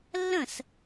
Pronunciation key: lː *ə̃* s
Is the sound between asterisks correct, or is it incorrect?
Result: correct